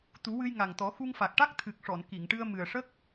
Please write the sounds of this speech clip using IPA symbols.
t̪ u˨˩˦ w ɨ˧ j ŋ a˨˩ ŋ t̪ ɔ˨˩˦ x u˧ ŋ f a˨˩ k̚ ʈ a˦˥ k̚ t̪ʰ ɨ˨˩ k̚ ʂ ɔ˨˩˨ n k i˨˩˨ ŋ ʈ ɨ˧ ə̯ m ɨ˨˩ ə̯ ʂ ə˦˥ k̚

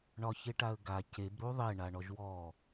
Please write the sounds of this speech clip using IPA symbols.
ɳ ɒ ç e ʈ a ə̯ ɡ a c e b ɾ u ðˤ e ɳ a ɳ ɔ ʒ w ɔ

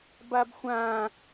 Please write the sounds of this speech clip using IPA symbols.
b a b xʷ ã

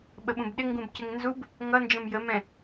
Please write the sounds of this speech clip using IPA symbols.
ɓ ə ɓ ũ b ɗ ɪ ŋ ɡ ũ b c ɪ ŋ n z u b | ŋ ʌ n d͡ʒ ə̃ m j ə m ɛ̃

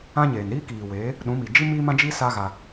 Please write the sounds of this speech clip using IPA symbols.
ã˦ ɲ eː˨ n ɾ iː˦ k iː˨ w eː˨˦ | ɗ ũ˨˦ m i˨ d͡ʒ i˦ m iː˦ m ã˦ d͡ʒ i˦ s a˦ ɣ a˧

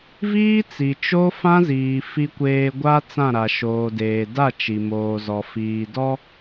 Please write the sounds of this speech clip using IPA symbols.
v iː˦ t͡s i˨ t͡ʃ o˦ f ã˦ z iː˨ f i˨ kʷ eː˨ ɡʷ a˦ t͡s ã˦˨ ɾ a˨ ʃ oː˨ d eː˨ d a˦˨ t͡ʃ i˨ m oː˨ z ɔ˨ f iː˨ d ɔ˦

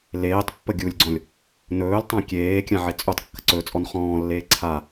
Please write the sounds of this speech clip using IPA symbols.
l eː tˤ pː ə ɡʲ u lʲ ɡ͡ǀ ɔ̃ lʲ | n ɵː l tˤ ã kʲ eː kʲ ã ʕ e t͡sʼ u tˤ kː ə ǀ ɵ t͡sʼ ɔ n χ ɔ̃ː lː eː ǀʰ a

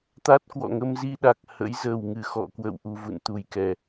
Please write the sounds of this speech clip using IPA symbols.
t̪ a˦˥ t̚ k w ɔ̰˧˨ ŋ ə˧ m z i˧ ɗ a˨˩ k̚ h ə̰˧˥ j z ə˨˩ w ŋ ɨ˧˩ x ɔ̰˧˨ k w ə̰˧˨ w ʔ u˨˩ v ṵ˧˨ n t̪ u˨˩ j k ɛ˨˩

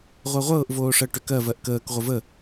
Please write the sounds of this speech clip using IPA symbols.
ʁʷ ɜ ʁʷ ɤː ʔ v oː ʂ ɜ ʈ ʏ k ɜ v ɜ ʔ k əː k ʁʷ ə v ə

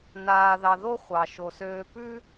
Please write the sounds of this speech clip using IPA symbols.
n aː˧ ð ɑ˧ ð o˦ χʷ ɑ˨ ʃ o˨ s øː˧ p ʉ˦

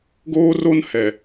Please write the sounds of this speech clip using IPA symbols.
ɡ oː˦ r o˦ n h ɛ˨

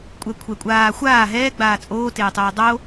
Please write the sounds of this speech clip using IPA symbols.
kʷʼ ɛ kʷʰ ɛ kʷʼ aː xʷ aː ɦ ɛː ɡ͡b aː t͡sʼ oː t eː tˤ oː dˤ o

